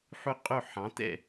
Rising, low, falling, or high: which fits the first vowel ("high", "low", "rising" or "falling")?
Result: high